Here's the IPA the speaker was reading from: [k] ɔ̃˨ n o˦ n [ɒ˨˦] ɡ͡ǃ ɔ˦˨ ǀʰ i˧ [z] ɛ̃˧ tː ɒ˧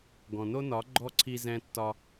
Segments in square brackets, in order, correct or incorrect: incorrect, correct, correct

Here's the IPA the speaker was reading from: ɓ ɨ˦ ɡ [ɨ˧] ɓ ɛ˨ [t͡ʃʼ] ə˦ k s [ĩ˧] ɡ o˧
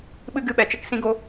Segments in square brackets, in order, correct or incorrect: incorrect, incorrect, correct

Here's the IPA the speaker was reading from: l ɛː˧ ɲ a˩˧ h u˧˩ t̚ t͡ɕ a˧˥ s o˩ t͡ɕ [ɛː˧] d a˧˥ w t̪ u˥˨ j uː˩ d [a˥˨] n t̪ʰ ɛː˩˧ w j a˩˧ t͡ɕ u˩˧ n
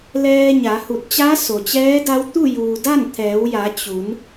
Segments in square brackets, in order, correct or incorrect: incorrect, correct

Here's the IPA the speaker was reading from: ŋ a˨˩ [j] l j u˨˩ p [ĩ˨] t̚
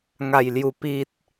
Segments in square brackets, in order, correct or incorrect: correct, incorrect

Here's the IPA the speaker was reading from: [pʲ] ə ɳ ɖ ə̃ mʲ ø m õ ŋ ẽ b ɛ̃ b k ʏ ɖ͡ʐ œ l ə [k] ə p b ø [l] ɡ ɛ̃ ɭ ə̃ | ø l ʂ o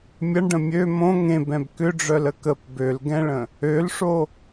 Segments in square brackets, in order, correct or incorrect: incorrect, correct, correct

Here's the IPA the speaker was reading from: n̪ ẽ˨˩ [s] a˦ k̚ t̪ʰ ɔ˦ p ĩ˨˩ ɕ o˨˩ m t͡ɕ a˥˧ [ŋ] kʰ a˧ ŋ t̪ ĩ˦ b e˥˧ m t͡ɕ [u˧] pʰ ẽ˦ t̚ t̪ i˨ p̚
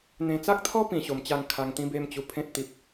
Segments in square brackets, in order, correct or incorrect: incorrect, correct, correct

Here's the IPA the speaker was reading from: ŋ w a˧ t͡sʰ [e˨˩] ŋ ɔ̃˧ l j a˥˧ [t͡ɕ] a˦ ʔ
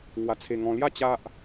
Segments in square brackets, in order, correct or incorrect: incorrect, correct

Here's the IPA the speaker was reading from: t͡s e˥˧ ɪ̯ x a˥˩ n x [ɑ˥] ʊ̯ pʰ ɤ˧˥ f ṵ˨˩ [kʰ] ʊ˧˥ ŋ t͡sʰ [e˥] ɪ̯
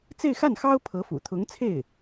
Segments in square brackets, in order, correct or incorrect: correct, incorrect, incorrect

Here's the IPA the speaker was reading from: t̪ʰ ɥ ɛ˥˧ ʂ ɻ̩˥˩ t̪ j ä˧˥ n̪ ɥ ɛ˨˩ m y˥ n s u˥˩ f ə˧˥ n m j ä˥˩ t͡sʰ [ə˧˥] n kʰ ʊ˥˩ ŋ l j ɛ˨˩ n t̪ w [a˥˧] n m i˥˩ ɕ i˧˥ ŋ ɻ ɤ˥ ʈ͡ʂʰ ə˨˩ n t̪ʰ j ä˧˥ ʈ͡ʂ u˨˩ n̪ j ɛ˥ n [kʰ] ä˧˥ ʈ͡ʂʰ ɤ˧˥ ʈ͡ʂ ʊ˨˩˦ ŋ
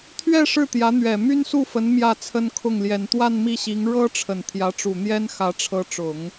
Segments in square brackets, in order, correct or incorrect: incorrect, correct, incorrect

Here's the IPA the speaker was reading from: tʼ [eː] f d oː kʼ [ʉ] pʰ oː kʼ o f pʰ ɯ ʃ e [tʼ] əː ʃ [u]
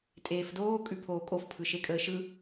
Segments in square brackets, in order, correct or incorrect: correct, correct, incorrect, incorrect

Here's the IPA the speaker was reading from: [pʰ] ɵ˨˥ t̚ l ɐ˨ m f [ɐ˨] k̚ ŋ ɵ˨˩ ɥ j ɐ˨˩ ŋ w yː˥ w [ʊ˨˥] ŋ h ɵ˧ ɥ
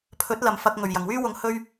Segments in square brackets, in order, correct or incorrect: correct, incorrect, correct

